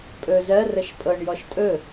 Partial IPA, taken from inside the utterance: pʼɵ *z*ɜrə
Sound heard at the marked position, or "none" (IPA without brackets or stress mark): z